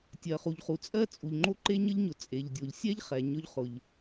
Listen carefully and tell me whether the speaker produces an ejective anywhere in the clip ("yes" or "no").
yes